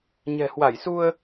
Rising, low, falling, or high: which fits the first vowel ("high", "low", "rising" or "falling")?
low